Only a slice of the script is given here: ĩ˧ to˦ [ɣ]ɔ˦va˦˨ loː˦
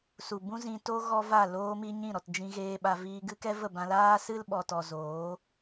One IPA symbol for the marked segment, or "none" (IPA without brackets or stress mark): ɣ